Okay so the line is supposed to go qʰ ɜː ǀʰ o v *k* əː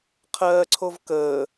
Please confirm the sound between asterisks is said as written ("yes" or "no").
yes